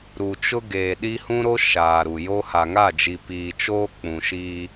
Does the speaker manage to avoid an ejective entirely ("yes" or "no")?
yes